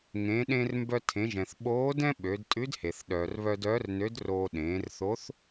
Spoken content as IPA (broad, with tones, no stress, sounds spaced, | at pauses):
ŋ ẽ˩˧ ɗ ẽ˧ r m b œ˧ tʰ ẽ˩˧ ʒ ɛ̃˩ θ ɓ oː˧˥ d ɛ̃˥ ɓ ø˩˧ d tʼ ʉ˧˥ d h e˩ θ ɗ œː˩ r β œ˧ d œː˧˥ r n ø˧˥ d r oː˧ ɗ ẽː˩˧ r θ o˧˥ θ